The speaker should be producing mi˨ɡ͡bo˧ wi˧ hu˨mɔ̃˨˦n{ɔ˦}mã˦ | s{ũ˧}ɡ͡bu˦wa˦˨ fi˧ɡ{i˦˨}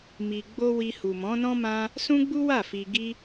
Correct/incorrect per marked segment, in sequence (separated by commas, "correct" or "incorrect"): incorrect, incorrect, incorrect